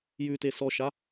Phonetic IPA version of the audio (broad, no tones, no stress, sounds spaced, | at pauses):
j ʉ t e s ɔ ʃ a